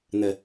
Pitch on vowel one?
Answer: low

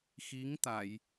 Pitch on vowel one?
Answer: rising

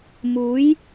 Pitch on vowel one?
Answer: rising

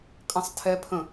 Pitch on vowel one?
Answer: falling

